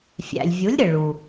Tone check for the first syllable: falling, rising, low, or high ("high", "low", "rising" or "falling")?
low